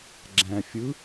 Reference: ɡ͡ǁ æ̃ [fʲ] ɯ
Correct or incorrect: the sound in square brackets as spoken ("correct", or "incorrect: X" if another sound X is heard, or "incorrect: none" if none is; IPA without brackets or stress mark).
correct